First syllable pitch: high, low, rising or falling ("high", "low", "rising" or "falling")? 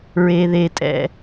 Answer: low